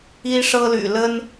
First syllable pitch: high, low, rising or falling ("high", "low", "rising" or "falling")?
high